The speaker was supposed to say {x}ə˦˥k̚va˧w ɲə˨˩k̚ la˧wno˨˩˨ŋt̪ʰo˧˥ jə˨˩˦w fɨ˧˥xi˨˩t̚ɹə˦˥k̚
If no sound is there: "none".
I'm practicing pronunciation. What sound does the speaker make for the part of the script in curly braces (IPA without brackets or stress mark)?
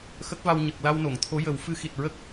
x